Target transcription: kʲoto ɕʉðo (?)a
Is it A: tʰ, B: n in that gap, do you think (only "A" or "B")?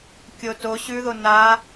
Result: B